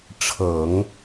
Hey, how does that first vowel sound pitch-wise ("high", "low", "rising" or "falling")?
low